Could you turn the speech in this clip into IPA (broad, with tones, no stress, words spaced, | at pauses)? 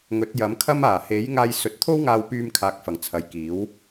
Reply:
ŋɵ˨˥t̚jɐ˨˥mkʰɐ˥maː˨˩ he˨˥jŋaː˧j sɵ˨˥t̚t̪ʰo˥wŋaː˧w pyː˧m kʰaː˨˥k̚ fɐ˨˩ŋt͡sʰɐ˨jkiː˨˥w